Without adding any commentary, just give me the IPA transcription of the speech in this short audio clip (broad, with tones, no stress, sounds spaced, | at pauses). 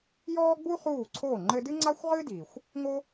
j ɔː˥ ɡ͡b u˥ χ uː˥˩ ǀʰ oː˥˩ ŋ͡ǃ ɘ˧ d ɨ˥ ŋ͡ǀ a˥ xʷ ʁ ɨ˥ d iː˩ xʷ | ŋ o˥